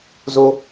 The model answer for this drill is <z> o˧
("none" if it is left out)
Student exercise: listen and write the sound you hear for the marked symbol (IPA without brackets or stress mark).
z